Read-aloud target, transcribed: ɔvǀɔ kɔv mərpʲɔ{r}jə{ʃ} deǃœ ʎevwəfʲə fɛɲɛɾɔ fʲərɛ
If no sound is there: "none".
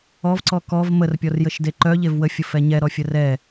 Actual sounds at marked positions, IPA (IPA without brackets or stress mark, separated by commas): r, ʃ